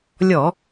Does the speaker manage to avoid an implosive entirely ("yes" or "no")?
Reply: yes